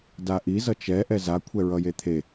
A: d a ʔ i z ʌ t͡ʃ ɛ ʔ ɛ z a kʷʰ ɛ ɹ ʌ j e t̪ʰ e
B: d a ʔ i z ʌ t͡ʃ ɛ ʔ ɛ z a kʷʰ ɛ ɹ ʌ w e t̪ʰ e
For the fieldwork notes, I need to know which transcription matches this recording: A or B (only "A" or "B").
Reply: A